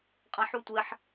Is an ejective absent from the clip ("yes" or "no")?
no